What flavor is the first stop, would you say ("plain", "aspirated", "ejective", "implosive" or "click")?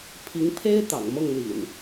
aspirated